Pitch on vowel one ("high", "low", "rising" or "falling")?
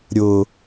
low